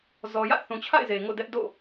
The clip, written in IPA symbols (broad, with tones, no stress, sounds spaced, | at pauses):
z ɔ˨ j ä̰˦˨ θ ũ˨ t͡ɕʰ a̰˦˨ ɪ̯ z e˨ ŋ o̰˦˨ d ɛ˦ ʔ d o̰˦˨